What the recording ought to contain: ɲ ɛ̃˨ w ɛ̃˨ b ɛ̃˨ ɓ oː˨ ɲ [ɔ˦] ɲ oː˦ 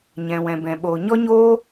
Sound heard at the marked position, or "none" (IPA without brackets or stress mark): ɔ˦